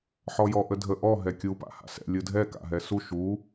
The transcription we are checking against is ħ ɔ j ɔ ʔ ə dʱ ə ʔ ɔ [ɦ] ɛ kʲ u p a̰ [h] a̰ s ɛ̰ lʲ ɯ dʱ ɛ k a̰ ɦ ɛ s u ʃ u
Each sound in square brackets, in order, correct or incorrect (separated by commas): correct, correct